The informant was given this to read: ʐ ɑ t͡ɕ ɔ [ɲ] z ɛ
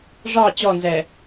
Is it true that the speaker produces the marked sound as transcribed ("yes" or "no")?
no